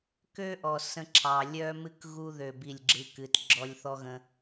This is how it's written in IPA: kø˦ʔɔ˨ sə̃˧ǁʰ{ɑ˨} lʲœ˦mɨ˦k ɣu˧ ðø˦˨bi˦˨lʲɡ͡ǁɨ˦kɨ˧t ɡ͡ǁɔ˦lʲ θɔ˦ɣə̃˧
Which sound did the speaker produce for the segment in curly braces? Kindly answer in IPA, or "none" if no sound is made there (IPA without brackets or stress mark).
ɑ˨